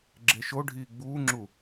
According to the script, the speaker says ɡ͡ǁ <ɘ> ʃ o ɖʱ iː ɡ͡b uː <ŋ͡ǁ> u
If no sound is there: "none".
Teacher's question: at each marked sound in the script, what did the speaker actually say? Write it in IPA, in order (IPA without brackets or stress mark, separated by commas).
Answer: e, ŋ͡ǁ